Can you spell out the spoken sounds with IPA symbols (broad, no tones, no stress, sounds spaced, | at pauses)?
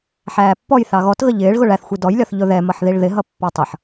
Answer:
ħ æː pː ɔ j θ ɑ ɣ ɔ t ɣ ə ʎ ɪː ɭ ɣ ʊ ɭ æ θ xʷ i d ɔ j lʲ ɒ θ ʎ ʊ ð ɛ m ʌ ħ ð i ɭ ð ɪ ɦ ʌ pː ɑ tˤ ʌ ħ